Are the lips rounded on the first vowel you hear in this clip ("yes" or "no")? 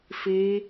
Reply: no